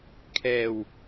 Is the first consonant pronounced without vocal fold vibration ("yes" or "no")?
yes